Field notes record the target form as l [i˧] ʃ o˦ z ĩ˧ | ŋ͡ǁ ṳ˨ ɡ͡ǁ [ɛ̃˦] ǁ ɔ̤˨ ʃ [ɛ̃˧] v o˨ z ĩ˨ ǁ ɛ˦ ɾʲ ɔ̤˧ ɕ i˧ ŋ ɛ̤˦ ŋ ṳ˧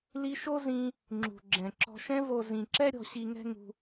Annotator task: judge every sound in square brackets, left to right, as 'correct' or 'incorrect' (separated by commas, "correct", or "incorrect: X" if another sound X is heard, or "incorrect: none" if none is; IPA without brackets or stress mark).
correct, incorrect: ɛ̃˨, correct